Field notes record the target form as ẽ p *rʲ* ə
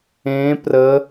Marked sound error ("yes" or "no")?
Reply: yes